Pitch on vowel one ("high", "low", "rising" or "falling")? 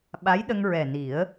rising